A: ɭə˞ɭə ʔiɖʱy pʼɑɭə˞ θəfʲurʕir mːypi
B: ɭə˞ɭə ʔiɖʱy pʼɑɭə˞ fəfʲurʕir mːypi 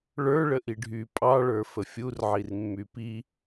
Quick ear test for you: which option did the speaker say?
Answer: B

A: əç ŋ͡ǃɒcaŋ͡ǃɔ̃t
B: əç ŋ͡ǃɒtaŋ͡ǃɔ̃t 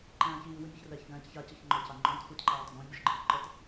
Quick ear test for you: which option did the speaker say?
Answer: A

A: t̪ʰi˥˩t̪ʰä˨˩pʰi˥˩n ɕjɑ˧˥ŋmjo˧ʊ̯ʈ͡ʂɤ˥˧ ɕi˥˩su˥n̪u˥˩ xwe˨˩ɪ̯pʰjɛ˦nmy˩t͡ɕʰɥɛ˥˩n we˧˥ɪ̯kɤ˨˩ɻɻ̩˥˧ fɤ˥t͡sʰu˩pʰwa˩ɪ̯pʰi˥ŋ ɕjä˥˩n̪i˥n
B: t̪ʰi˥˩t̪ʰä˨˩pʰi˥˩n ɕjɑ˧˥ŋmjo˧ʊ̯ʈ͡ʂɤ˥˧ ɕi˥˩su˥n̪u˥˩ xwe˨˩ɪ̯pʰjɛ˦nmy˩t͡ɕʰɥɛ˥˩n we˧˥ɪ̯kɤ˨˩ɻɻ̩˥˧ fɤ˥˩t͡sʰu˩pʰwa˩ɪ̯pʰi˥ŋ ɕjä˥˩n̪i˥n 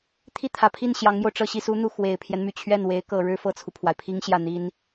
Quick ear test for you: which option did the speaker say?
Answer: B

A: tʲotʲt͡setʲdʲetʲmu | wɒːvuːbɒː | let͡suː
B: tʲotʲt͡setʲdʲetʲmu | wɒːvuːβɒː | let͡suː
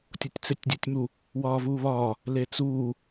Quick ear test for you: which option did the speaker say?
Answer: B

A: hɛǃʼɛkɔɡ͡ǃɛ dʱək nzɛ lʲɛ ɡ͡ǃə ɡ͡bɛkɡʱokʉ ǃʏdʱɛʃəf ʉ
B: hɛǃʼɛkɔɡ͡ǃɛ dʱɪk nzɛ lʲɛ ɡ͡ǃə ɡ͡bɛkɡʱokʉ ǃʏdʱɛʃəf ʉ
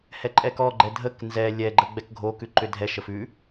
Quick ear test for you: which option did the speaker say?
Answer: A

